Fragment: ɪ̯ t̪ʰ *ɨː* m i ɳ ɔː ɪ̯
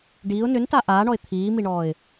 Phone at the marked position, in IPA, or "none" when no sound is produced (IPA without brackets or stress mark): iː